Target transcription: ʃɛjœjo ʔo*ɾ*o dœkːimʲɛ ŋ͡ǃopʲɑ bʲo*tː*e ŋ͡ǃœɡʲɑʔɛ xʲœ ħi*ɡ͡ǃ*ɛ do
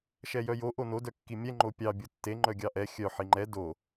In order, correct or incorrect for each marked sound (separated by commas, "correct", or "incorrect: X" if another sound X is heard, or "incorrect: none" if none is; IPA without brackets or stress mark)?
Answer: incorrect: n, correct, incorrect: ŋ͡ǃ